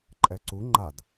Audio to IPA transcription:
ǃʼ ɛ ǀ u ŋ͡ǃ a d

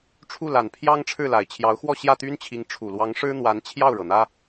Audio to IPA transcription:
ʈ͡ʂʰ u˥˩ l a˨˩ n pʰ j ɑ˥ ŋ ʈ͡ʂʰ ɻ̩˥˩ l a˨˩ ɪ̯ t͡ɕʰ j ɑ˧˥ ʊ̯ x w ɔ˥˧ ɕ j ä˥˩ t̪ y˥ n t͡ɕʰ i˧˥ ŋ ʈ͡ʂʰ u˨˩ l w ɑ˧˥ ŋ ʂ ɻ̩˥ n̪ w a˧˥ n t͡ɕʰ j ɑ˥˩ ʊ̯ ɻ ɤ˩ n̪ ä˥

